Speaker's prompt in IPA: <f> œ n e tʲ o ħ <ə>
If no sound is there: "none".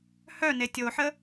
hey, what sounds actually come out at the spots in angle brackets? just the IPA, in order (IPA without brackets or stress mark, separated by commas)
h, ə